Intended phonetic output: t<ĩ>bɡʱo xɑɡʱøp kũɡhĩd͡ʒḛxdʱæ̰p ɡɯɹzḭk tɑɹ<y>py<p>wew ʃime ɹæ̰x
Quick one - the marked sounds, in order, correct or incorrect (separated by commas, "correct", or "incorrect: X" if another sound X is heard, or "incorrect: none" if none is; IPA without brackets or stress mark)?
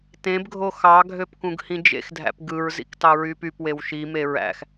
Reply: incorrect: ẽ, correct, correct